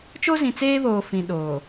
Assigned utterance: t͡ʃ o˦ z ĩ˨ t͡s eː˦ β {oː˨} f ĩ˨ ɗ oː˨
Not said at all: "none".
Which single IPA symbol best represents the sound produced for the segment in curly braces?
oː˨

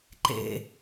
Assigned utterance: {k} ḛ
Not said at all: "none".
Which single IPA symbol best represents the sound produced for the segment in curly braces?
ǃ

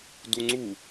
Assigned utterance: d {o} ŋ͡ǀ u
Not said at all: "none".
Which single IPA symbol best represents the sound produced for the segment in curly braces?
u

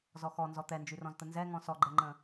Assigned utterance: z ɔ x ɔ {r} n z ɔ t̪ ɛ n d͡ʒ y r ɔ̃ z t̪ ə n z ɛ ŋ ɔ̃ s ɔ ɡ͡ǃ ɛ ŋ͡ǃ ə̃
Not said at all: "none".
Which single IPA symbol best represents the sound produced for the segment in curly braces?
none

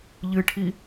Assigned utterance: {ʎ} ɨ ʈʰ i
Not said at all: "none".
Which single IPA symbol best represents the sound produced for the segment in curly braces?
ʎ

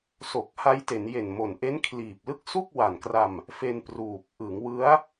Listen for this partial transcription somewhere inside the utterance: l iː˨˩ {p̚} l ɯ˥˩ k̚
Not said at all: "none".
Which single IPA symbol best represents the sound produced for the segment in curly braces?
p̚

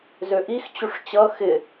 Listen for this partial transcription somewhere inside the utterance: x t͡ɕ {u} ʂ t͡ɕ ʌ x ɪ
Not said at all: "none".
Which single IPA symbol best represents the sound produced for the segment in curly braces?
u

